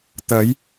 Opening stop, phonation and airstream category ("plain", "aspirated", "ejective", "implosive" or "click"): plain